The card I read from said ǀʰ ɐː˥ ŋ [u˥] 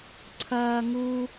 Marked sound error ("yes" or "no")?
no